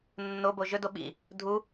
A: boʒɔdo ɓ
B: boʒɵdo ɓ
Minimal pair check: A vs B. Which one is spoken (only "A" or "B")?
B